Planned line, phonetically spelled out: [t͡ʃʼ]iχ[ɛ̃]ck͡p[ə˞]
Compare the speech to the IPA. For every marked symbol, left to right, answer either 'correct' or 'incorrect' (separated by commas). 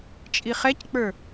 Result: correct, incorrect, correct